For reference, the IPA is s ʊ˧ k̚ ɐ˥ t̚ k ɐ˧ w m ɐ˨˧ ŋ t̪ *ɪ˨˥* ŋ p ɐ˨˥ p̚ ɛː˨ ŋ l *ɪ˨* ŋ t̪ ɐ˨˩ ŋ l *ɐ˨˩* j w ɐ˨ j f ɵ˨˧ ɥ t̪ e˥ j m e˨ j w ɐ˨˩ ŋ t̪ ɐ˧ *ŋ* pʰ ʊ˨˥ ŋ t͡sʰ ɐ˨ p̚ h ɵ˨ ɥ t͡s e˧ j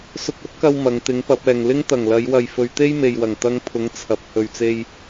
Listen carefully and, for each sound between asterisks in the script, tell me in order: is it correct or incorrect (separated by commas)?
correct, incorrect, incorrect, correct